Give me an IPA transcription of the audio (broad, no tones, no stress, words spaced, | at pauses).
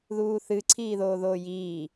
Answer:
ðuːθɨ ǀʰiːðoːðoːjiː